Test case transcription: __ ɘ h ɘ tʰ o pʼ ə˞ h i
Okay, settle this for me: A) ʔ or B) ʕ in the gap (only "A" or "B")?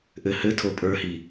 A